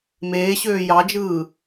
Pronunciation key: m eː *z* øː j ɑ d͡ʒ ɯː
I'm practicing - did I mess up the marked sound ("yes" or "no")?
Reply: yes